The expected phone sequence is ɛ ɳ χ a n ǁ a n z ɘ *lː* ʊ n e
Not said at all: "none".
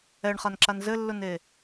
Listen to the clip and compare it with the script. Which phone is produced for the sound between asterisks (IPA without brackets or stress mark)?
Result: lː